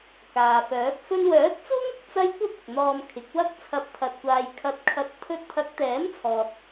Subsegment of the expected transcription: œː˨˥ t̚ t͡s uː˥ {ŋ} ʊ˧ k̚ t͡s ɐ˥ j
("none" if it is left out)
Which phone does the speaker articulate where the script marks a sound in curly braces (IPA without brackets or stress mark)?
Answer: ŋ